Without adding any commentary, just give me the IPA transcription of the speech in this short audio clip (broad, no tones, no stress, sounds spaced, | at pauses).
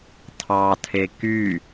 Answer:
tʰ ɑ tʰ e k y